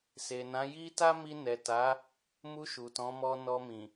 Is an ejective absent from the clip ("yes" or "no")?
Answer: yes